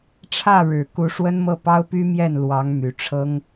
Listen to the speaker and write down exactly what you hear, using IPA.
ʈ͡ʂʰ ä˥˩ ɻ ɻ̩˨˩ k u˧˥ ʂ w ə˥ n m ɤ˥˩ p ɑ˥ ʊ̯ p y˥ m j ɛ˥˩ n l w ɑ˧˥ ŋ m y˨˩ ʈ͡ʂʰ ɤ˥ ŋ

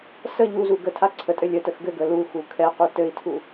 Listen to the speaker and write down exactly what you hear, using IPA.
s ə ʎ u z u ɡ ə tʰ a ǀʰ ə tʼ ɘ lʲ ə t ə x ɡ ɘ ɡ ə l u x u kʰ ɛ q u t ɘ i̯ tʰ u

